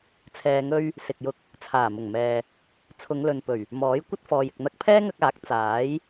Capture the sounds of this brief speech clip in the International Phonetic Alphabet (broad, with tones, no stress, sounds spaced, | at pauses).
t͡sʰ ɛː˧ ŋ ɵ˥ ɥ | s ɪ˨ k̚ j ʊ˧ k̚ | t͡sʰ aː˨˩ m ʊ˨˩ ŋ m ɛː˨ | t͡sʰ ʊ˨˧ ŋ l ɵ˨ n p ɵ˨˩ ɥ | m ɔː˨˥ j kʷ ɐ˥ t̚ f ɔː˨ j ɪ˨ k̚ n̪ ɐ˧ k̚ pʰ ɛː˥ ŋ ɐ˧ k̚ aː˨˥ k̚ t͡s aː˨˥ j